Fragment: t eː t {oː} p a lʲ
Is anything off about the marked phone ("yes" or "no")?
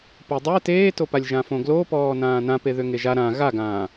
yes